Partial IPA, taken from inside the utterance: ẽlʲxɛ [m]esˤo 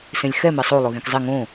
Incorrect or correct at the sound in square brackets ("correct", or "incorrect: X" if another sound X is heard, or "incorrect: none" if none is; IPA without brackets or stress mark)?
correct